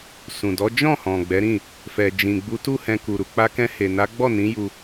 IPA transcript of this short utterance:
sũ˨ dɔ˨˦ d͡ʒɔ̃˦˨hɔ̃˨ɡ͡bɛ˨˦ɾĩ˦˨ | fɛ˨d͡ʒĩ˨ ɡ͡bu˨˦ tu˦hɛ̃˧ ku˨ɾu˨ k͡pa˧kɛ̃˧ he˨na˨˦ ɡ͡bɔ˦˨nĩ˨˦ju˧

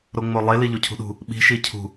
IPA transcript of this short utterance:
ɾoŋ͡molˠe liʎucʰṳɗṳ | ɓi̤ ʃicʰṳ

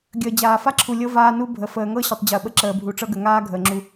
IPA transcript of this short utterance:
ɡʲəː˨d͡ʑaː˨ fa˦ǁʰu˨lʲɤ˦ vaː˦nu˦ bʱə˨ fəː˨ŋɤ˦ɕə˨tˤ d͡ʑəː˨ɓə˦ǁəː˨ bʱu˨ʈ͡ʂɤ˦ɡə˨ ŋaː˦ ɡʱəː˨ŋ͡ǁu˦

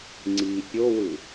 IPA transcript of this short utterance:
ŋ͡ǀi pʲowɯ

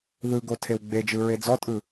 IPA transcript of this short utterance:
ðɯɡo tʰewɡ͡bed͡ʒɯ ɹed͡zɔtʼɯ

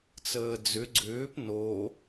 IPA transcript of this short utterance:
t͡səːd͡zʏ ɡ͡ǀʏːp no

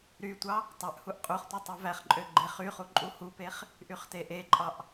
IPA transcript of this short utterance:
ɾytʷɑ | tˤøʔhuʔ qʼuχtʷe tˤuvæχǃʼø ɡ͡ǃeχyχu ǃʼuhupeχ | ʔyχteʔeǃʼɑʔ

